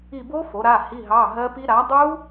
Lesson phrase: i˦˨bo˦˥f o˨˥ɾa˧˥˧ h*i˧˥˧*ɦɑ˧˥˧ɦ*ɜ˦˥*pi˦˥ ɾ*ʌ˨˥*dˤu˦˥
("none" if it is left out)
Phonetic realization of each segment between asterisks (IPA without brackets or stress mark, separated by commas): i˧˥˧, ɜ˦˥, a˨˥